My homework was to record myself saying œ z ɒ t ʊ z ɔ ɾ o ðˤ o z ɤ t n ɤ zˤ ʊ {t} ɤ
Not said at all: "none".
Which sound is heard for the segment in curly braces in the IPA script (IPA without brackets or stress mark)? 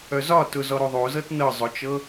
t͡ʃ